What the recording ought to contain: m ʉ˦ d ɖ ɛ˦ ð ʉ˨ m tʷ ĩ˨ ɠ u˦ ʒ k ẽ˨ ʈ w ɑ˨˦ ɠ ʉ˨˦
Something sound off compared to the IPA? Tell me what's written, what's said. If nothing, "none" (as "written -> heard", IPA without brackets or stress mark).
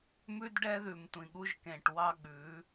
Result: ɑ˨˦ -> ɑ˦